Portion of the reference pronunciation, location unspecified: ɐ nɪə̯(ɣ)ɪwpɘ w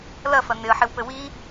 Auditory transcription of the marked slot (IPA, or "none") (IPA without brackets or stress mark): ħ